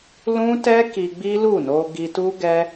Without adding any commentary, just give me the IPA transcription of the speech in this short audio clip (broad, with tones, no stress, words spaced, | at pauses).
lũ˦tɛ˦ki˧ ɡ͡bi˦lu˦˨no˧ ɡi˧tu˦ɡɛ˦